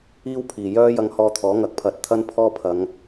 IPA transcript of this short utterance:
iː˥wpʰiː˨˩jœː˥ jɐ˧ŋhɔː˧t̪ʰɔː˨˥ ŋɐ˨˥k̚pʰɐ˨t̚t̪ʰɐ˥n pʰɔː˥pʰɐ˨˧ŋ

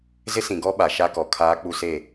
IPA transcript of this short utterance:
zɪ˦sĩ˨ɡɔ˦ ɓa˨ʃa˦kɔ˨ kʰaː˦k͡pu˦se˦˨

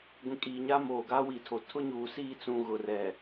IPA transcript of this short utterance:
ɡʷĩ˨kʼiː˨ɲaː˦ moː˨ɡa˦wi˨tʰo˨ tʰʊ˦ɲuː˨ siː˦˨t͡sũ˨ ɣʊ˨rɛ˨

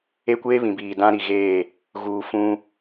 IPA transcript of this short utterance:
e˦kʷeː˦βĩ˨biː˨ dã˦ɾi˨ɣeː˦˨ | ɣuː˨fũ˦

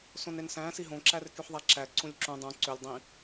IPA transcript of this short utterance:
sõnensæ̃ siɦõ ǁærkyħðˤæǁæ ǀũlʲǁũ dˤũ ǀølʲ dˤĩ

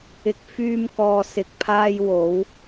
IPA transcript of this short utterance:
ɪ˧k̚ fyː˧mkɔː˨sɪ˨k̚pʰaː˧j wo˨˧w

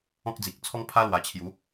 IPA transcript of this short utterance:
ɔ̃˦k̚d͡zi˨k̚t͡sʰɔ˦ŋ pʰa˦lwa˨˩t͡ɕʰju˨˦

